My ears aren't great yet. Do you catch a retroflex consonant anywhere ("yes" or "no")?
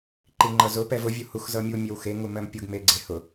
no